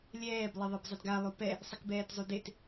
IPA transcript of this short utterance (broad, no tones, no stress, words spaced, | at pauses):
lʲɛːb lˠeðˤibzˤɪdɡa lˠupɛ | sˤɪkbɛːtzˤudet